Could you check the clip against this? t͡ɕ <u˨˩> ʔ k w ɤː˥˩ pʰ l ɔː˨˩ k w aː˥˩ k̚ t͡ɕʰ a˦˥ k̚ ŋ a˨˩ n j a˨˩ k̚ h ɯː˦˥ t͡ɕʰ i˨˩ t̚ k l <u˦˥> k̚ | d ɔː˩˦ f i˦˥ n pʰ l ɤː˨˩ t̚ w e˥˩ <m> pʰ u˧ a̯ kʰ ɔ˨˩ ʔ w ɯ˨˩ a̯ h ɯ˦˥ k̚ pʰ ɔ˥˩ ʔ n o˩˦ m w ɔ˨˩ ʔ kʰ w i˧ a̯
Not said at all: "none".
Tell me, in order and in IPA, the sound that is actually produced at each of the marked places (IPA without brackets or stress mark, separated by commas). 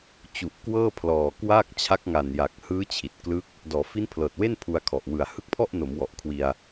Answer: u˨˩, ɯ˦˥, n